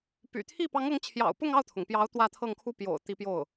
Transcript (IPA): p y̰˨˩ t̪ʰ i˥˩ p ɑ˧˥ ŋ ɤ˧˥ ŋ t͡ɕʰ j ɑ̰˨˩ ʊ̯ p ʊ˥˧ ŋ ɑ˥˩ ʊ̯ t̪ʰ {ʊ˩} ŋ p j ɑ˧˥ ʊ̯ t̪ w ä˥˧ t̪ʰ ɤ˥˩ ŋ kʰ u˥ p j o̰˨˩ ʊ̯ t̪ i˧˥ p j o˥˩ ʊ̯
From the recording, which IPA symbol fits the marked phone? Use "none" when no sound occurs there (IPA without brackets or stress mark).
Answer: ʊ˩